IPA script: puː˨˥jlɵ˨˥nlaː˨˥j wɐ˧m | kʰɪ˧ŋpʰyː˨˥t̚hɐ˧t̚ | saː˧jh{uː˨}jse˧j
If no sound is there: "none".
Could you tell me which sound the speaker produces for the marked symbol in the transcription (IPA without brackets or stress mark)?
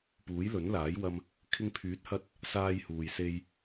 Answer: uː˨